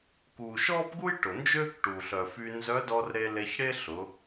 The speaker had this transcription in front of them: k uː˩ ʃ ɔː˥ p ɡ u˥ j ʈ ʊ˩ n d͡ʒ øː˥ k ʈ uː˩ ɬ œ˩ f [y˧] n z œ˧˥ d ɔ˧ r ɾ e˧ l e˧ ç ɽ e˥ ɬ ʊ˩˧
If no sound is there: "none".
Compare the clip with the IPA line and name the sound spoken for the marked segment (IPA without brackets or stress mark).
y˧